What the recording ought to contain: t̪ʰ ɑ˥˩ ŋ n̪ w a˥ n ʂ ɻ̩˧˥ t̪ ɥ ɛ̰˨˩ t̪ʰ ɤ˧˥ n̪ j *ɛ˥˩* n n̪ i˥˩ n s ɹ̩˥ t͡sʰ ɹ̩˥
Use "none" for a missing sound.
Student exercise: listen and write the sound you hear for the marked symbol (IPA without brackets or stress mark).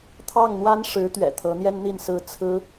ɛ˥